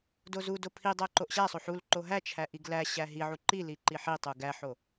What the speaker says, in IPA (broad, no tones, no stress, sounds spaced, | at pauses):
d o z u d o pʰ i dˤ æ ǃ o ʔ ɕ æ sˤ o ħ u l ǃ o ɦ æ t͡ʃʰ æ ʔ i ɡ l æ ɕ æ ɦ i ʕ u ǃ i l i ǃ i ħ i tˤ u ɡ æ ħ o